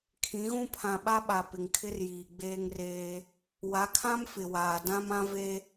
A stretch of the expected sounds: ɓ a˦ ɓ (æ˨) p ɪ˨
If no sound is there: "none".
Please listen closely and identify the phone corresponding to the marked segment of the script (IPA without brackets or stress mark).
a˨